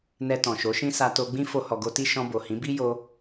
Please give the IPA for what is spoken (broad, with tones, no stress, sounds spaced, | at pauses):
n ɛ˧ t ɔ̃˨ ʃ o˨˦ ʃ ĩ˦ s a˧ t o˧ ɡ͡b ĩ˦ f o˧ h ɔ˨ ɡ o˧ t i˦ ʃ ɔ̃˧ b o˨ h ĩ˨˦ b i˦ j o˧